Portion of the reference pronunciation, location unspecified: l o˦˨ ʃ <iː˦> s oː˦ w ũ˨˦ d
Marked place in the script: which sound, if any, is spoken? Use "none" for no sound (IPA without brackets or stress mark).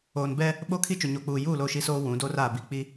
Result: i˦